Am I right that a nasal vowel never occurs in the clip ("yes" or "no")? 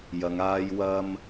yes